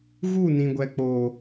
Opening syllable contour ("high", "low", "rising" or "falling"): falling